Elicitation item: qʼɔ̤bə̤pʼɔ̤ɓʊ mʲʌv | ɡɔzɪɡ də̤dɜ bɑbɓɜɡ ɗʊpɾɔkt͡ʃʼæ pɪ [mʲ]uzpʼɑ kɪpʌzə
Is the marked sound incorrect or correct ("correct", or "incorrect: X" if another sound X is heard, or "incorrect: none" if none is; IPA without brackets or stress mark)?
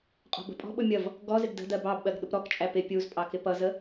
incorrect: pʲ